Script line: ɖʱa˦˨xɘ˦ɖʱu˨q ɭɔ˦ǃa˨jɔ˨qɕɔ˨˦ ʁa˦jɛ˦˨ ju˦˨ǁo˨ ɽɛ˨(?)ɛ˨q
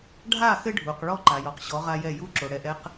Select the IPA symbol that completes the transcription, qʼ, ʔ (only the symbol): ʔ